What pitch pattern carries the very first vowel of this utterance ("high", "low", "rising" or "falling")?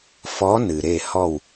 rising